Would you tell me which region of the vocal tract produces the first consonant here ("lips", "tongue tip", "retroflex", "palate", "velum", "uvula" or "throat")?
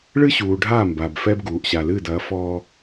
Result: retroflex